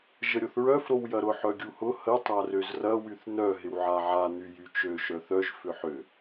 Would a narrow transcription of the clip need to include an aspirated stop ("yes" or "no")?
no